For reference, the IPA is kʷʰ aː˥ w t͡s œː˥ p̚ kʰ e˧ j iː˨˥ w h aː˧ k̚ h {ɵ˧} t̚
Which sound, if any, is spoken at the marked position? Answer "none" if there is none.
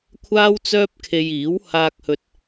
ɵ˧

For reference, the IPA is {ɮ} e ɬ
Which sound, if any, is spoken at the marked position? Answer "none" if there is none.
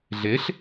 ɮ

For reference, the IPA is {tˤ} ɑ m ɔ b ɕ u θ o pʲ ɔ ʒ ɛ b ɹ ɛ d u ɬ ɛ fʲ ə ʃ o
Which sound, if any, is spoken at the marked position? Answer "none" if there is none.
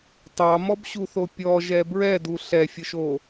tˤ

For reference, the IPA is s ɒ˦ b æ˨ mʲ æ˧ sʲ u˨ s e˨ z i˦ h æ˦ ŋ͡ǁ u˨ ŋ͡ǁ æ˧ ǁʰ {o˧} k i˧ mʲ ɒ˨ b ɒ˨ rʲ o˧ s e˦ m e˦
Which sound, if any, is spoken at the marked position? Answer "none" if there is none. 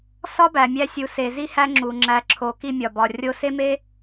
o˧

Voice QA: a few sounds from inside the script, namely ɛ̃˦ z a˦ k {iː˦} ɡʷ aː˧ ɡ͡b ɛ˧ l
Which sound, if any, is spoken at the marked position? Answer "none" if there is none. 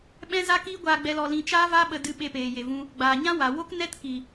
iː˦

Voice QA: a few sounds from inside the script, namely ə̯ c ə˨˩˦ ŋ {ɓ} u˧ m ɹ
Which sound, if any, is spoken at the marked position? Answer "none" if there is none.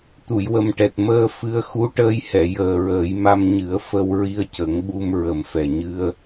ɓ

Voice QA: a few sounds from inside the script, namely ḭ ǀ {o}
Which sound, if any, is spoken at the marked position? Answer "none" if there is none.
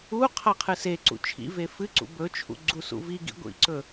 ɵ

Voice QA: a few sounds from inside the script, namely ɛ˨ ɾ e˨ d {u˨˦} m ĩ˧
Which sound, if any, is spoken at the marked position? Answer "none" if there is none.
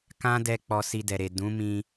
ũ˨˦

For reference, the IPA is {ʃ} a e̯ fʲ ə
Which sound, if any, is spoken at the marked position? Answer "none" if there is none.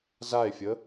z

